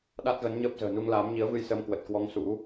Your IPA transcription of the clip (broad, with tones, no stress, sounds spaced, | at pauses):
ɗ a˦˥ t̚ ɣ ə˨˦ n ɲ əː˦˥ p̚ z ə̤ː˨˩ n u˧ ŋ l aː˨˦ m ɲ i˨˦ ə̯ v ɨ˧ j s əː˧ m k w ə˨˩ t̚ k w ɔ˨˦ ŋ s ṵ˧˥